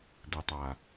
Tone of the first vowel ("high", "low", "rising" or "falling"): low